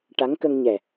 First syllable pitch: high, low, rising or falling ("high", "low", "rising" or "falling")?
rising